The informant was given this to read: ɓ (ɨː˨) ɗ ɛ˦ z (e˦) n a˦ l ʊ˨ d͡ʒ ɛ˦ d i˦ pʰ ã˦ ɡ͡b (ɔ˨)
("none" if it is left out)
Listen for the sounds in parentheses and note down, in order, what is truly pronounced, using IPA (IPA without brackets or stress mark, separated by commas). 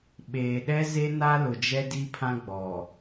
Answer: eː˨, e˦, ɔ˨